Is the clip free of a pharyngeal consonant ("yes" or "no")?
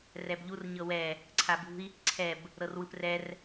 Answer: yes